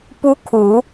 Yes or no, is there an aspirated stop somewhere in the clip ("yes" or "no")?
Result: yes